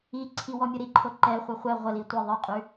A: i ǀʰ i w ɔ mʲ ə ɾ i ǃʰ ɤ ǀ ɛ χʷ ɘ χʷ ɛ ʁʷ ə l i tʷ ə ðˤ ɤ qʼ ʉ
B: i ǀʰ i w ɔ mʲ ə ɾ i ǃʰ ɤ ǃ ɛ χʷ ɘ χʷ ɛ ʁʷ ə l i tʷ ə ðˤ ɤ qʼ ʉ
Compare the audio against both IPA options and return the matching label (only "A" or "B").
B